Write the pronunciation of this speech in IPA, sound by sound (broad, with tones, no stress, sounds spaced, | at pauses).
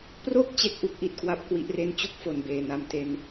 p r o˥˩ k̚ t͡ɕ e˥˩ k̚ ʔ u˥˩ k̚ ʔ i˨˩ t̚ k w a˦˥ p̚ k w i˦˥ ʔ r e˥˩ n t͡ɕ u˥˩ k̚ f o˨˩ n b eː˨˩ n a˧ m t e˧ n